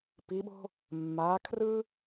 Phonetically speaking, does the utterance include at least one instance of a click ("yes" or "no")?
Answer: no